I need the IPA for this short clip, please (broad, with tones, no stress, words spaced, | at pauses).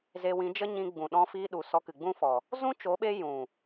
ze˧wĩ˨˦d͡ʒə˦ ɲĩ˧ɡ͡bũ˨ɗɔ̃˧ fiː˧ɗu˨ sɔ˧kɨ˨ɡ͡bũ˦ fɔ˨ | zũ˦t͡ʃo˨˦ɓe˧ jũ˨